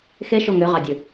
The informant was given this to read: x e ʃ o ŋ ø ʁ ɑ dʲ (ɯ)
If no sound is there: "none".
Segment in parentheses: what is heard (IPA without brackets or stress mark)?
ɯ